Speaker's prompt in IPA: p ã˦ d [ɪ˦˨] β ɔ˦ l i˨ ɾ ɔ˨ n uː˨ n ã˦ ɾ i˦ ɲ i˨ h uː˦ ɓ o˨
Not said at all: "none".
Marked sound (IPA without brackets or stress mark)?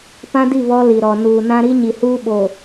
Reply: i˦˨